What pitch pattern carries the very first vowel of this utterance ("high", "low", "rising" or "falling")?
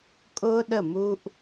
high